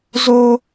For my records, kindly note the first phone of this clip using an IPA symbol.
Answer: z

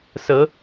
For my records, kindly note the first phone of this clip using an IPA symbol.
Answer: s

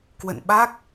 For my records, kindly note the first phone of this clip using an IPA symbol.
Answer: k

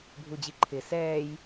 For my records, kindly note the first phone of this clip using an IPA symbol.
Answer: bʱ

